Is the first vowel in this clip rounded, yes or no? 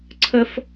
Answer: no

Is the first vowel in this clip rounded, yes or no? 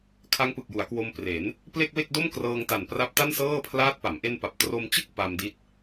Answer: no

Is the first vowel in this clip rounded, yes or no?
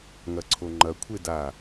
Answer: no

